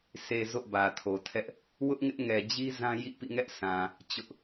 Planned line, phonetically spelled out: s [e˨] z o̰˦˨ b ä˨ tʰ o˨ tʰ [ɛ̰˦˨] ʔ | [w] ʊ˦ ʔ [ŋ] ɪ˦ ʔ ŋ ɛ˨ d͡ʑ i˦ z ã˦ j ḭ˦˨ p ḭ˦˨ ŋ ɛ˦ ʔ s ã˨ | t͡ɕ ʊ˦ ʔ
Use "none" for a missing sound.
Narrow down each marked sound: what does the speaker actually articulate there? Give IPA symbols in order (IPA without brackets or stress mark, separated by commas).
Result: e˨, ɛ˦, w, ŋ